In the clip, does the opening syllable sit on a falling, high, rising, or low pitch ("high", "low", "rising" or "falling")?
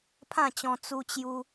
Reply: falling